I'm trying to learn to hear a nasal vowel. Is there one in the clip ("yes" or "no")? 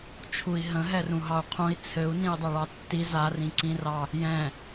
yes